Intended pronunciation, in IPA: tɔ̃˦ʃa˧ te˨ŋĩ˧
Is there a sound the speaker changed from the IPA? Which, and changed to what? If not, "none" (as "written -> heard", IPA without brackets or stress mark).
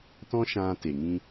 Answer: a˧ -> ã˧